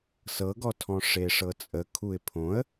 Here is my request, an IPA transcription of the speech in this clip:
sɤɡɔtʰɔ̃ ʂeʂɤt͡sʼə kʰuɪ̯pʰõə̯

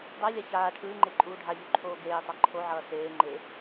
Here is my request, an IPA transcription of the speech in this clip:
dˤalʲa çaː ʈʰɯːŋ͡ǃe ǃʼuːɖʱaʎo ǃʰoːɡeːtˤa ǃʰoʕʌː seːŋ͡ǃe

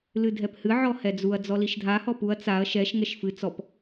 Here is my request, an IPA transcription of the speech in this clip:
lɨdʱɛphɨ ʕɔhɛd͡zuɐ̯ d͡zɔliʃdʱa hɔpuɐ̯ t͡saɐ̯ ʃɛʃ ŋɛʃfɨ t͡sɔp

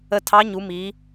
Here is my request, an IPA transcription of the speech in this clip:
ə˧tʰɑ˧˥ ɲu˩˧mi˩˧

